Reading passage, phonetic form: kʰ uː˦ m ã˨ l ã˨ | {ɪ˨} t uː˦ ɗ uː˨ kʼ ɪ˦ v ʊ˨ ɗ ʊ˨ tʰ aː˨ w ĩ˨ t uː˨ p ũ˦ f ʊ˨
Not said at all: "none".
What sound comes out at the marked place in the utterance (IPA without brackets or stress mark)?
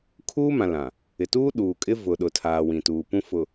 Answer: ɪ˨